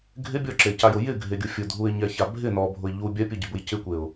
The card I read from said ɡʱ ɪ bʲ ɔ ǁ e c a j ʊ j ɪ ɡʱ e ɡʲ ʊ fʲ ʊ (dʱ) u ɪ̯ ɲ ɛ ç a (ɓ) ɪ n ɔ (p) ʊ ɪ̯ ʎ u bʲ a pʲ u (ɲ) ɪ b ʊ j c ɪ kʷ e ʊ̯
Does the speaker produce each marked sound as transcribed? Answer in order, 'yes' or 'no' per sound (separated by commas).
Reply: yes, no, no, no